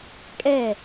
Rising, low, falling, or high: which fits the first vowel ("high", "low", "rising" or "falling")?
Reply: falling